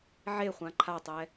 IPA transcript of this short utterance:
ʕ e χʷ ã ǃʰ a tˤ ɛ

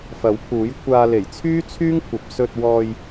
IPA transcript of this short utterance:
f ɐ˨˥ w pʰ uː˨˥ j kʷʰ aː˧ l e˨˩ j t͡sʰ yː˥ t͡sʰ yː˥ ŋ kʷʰ ɐ˨˥ p̚ s ɵ˧ t̚ w ɔː˧ j

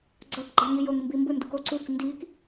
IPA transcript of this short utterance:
ɡ͡ǀ ʌ k ɡ͡ǃ a ŋ i j o ŋ m b i m b ɯ n d u k o ǀ u k n d i k

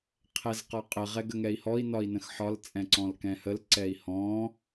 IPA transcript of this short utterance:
qʰ ɛ z q ɒ qʼ ə ʁ ɛ ɡ ə ŋ ɛ i̯ h ɔ i̯ n ɒ i̯ n ə̃ x ħ ɒ l t͡sʼ ɛ̃ ǀ ɔ̃ l k ɛ̃ h ə l ǀ ɛ i̯ h ɔ̃

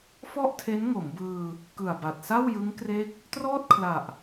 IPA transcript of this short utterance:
f ɔ˥˩ ʔ tʰ e˦˥ n ŋ o˩˦ m b ɯː˧ | k ɯ˨˩ a̯ b a˨˩ t̚ s a˥˩ w j ɯ˦˥ ŋ k r e˥˩ k̚ | t r ɔː˥˩ t̚ kʰ l a˨˩ ʔ

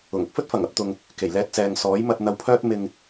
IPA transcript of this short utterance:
ʊ˨˩ ŋ ʊ˥ k̚ f ɵ˥ t̚ f ɐ˨˩ ŋ ɐ˧ p̚ t̪ ʊ˨ ŋ | k e˨˩ j l ɛː˧ t̚ t͡s ɛː˨ ŋ s ɔː˨˥ j m ɐ˧ t̚ n̪ ɐ˧ w pʰ œː˥ t̚ m ɪ˧ ŋ

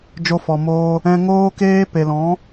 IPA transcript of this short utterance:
d͡ʒ o˧ f ɔ˨ m oː˧ | ɛ̃˧ ŋ oː˦ k eː˦ p e˨ l ɔ̃˨˦

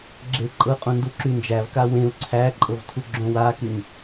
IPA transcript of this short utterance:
ɡ͡ǁ e ǃʼ ɤ qʼ ũ n d u ǁ y n d͡ʒ æ v k a w ẽ u̯ ǀʰ æ ǃʼ ɤ v tʰ u ɡ͡ǁ õ w a k y n

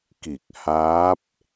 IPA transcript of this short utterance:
k i˧˩ k̚ h aː˧˥ p̚

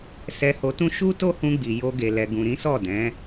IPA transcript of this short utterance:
s ɛ˧ h o˧ t ũ˦ ʃ u˦ t o˦ h ũ˧ ɡ͡b i˨ j o˧ ɡ e˨ l ɛ˨ ɡ ũ˨ ɾ ĩ˨˦ s ɔ˦˨ d ɛ̃˨˦

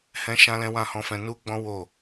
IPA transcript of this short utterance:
h ɛ̃˦ ʃ ã˦ l ɛ̃˦ w ã˦˨ h ɔ̃˧ f ɛ̃˧ n u˦ ɡ͡b ɔ̃˦ w o˦˨

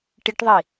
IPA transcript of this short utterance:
ʈ i ʈ ðˤ i

